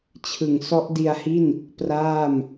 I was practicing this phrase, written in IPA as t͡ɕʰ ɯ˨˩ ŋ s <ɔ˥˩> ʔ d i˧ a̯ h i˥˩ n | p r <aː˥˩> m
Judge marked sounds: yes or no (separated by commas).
no, yes